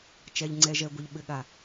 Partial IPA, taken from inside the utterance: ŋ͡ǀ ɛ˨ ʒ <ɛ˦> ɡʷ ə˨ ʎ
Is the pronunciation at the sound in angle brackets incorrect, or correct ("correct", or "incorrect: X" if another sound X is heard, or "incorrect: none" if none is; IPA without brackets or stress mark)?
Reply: incorrect: ɛ˨